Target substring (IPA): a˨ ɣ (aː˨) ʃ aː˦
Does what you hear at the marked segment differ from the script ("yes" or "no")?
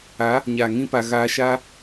yes